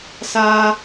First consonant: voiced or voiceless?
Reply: voiceless